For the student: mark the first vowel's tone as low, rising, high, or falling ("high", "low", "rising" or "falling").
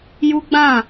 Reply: high